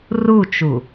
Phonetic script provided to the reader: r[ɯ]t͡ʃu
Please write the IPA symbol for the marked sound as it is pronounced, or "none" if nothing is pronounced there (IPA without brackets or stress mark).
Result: u